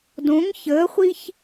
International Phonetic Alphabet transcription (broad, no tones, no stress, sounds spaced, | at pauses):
d õ ŋ ç əː χʷ i ç